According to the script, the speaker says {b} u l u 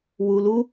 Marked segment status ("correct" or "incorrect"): incorrect